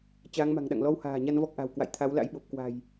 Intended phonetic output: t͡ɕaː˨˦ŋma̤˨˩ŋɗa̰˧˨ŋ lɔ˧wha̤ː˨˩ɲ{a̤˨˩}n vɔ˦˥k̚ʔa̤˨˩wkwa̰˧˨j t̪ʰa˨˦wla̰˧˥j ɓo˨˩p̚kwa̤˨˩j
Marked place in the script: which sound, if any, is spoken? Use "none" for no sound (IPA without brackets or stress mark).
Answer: a˧